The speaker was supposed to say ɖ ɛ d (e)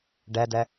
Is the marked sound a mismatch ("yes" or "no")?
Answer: yes